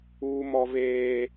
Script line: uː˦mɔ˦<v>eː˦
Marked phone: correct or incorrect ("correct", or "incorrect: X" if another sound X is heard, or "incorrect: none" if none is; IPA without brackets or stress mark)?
correct